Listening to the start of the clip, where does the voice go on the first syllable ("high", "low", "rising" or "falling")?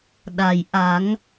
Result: low